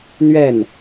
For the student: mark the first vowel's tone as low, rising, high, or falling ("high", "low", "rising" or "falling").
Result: falling